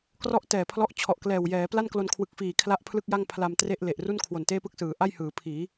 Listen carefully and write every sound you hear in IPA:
k r ɔ˥˩ ʔ t ɛː˨˩ pʰ l ɔ˦˥ ʔ t͡ɕʰ ɔ˨˩ ʔ k l ɛː˨˩ w j ɛː˩˦ p l a˥˩ n k l o˧ n kʰ w ɯ˨˩ k̚ f iː˨˩ kʰ l a˥˩ ʔ pʰ l ɯ˥˩ k̚ j a˥˩ ŋ pʰ l a˧ m t r e˥˩ ʔ l e˨˩ ʔ r u˥˩ n kʰ w o˨˩ n t eː˥˩ p ɯ˥˩ k̚ s ɯː˩˦ ʔ a˥˩ j h ɯː˩˦ pʰ iː˩˦

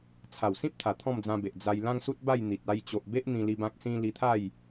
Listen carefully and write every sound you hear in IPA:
t͡sʰ a˨˩ w s ĩ˦ p̚ t̪ʰ a˨˩ t̪ʰ ɔ̃˥˧ m d͡z ã˧ b e˨ ʔ d͡z a˧ j l ã˦ ŋ s u˦ t̚ b a˥˧ j n̪ i˨ t̚ a˧ j t͡ɕ o˨ ʔ b e˦ ʔ n̪ ĩ˧ l i˧ b ã˦ k̚ s ĩ˦ l i˧ t̪ʰ a˥˧ j

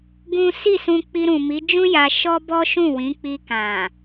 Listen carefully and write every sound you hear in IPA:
ɡ ũ˦ s i˦˨ s ũ˧ k͡p i˧ ɾ ũ˨ m i˨˦ d͡ʒ ũ˦ j a˧ ʃ ɔ˦ b ɔ˦ ʃ ũ˦˨ w ĩ˨˦ k͡p i˧ k ã˨

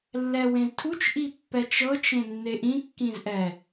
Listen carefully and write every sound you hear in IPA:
lː ɛ w ẽ z tʰ u t͡ʃ ʔ i pː ɛ t͡ʃ ɤ t͡ʃ ẽ nː e ʔ ĩ kː ĩ z ʔ ɛ

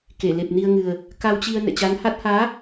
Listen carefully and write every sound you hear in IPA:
k e˧˩ l e˨˩ p̚ n i˧ ə̯ ŋ ɨ˨˩ ə̯ | k a˧ w t͡ɕ i˧ ə̯ n ɛ̰˧˨ t͡ɕ a˨˦ n h a˦˥ t̚ h aː˨˦

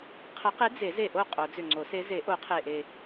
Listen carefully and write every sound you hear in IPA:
qʰ ə˨˩˦ q e˨˥ d͡z e˨˩˦ z e˨˩ ʔ o˥˩ qʼ o˨˩˦ d͡z ʏ˨˩ ŋ͡ǀ o˨˩˦ s e˨˥ z e˨˩˦ ʔ o˨˩˦ qʰ e˨˩ ʔ e˨˩

